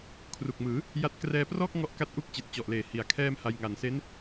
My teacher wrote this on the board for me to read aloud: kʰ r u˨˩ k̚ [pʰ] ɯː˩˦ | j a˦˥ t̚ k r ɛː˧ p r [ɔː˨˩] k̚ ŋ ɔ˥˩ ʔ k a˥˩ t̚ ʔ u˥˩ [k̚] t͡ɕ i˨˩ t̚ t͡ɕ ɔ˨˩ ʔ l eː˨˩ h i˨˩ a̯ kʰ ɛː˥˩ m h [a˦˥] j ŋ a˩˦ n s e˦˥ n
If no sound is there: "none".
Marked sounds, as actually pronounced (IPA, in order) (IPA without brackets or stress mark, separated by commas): m, ɔː˥˩, k̚, a˧